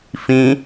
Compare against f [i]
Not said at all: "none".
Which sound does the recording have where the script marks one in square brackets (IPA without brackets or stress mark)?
ĩ